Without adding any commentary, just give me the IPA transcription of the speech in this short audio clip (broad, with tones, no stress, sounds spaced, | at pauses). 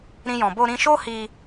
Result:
ɾ ĩ˦ j ɔ̃˧ b o˧ ɾ ĩ˧ ʃ o˦ h i˧